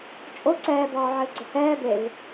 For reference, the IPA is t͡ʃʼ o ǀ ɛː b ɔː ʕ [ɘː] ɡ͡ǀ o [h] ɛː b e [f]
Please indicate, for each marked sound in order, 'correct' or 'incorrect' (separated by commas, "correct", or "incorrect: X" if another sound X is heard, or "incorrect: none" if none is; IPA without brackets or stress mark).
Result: correct, correct, incorrect: v